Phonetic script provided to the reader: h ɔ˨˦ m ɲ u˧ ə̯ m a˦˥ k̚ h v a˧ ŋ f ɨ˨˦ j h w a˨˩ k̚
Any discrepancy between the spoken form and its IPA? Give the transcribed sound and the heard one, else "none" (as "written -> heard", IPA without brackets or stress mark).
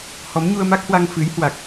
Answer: v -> w